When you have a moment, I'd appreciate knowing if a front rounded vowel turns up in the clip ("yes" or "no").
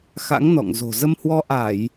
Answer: no